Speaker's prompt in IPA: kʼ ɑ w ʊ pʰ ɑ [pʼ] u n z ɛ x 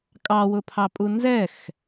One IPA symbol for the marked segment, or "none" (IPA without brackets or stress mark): pʼ